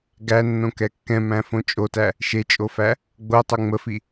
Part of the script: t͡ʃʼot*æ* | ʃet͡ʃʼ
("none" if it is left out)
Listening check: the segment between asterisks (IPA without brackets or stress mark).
æ